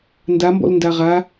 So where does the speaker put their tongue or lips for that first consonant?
tongue tip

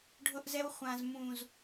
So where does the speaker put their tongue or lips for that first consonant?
retroflex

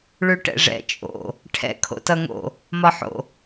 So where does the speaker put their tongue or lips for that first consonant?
retroflex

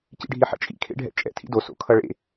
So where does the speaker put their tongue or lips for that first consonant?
palate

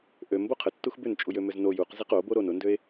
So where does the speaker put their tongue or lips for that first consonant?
throat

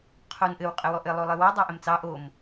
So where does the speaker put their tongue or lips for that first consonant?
uvula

